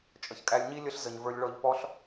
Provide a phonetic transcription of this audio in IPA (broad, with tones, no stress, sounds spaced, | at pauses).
t͡ʃʼ ə˨ ç kʼ æ˧ lʲ ɲ i˦ lʲ ə˦ ɬ z ə˨ ɲ v ə˞˧ lʲ ɭ ɔ˧ ʎ p ɔ˦ ɬ